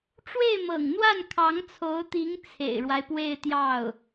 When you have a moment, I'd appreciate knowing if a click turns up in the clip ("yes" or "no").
no